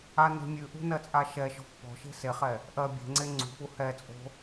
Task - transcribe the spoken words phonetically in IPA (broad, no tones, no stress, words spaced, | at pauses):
ane̤mʲʉʔṳ nɜt͡sʼaʃɛʃɔ̤f pɔ̤ʃe̤ seχɛ | ʔɜ bʲe̤ŋ͡ǀe ŋ͡ǀṳpu hɛt͡sʼo̤